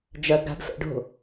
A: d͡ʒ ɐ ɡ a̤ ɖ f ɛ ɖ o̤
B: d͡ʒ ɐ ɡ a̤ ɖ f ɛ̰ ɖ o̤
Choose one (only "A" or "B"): B